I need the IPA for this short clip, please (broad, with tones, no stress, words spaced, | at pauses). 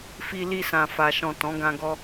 fi˧li˧ sã˨fa˨ʃɔ̃˨ tɔ̃˨˦ɡã˧ɡɔ˧